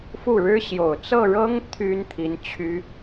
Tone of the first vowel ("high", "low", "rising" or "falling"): falling